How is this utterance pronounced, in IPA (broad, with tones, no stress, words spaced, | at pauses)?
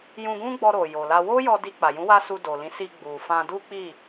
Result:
jũ˧ɡũ˦ɡ͡bɔ˧ ɾo˨jo˨la˧ wo˦jɔ˧ di˧k͡pa˨jũ˨˦ wa˦su˧do˨lĩ˨˦ si˧ɡ͡bu˨fã˧ du˦k͡pi˦˨